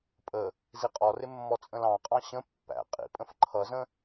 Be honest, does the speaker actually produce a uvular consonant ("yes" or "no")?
yes